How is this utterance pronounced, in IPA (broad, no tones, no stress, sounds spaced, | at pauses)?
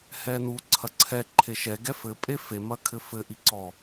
h ɛ n u ǀʰ ɐ ǀʰ ɛ ǃʰ e ʃ ɛ ɡ ɛ f ɘ pʼ e f e m ɐ kʰ ɘ f ɘ ʔ i ǀ ɔ